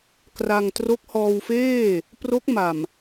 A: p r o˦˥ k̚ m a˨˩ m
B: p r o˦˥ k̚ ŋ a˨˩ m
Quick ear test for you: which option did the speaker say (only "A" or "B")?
A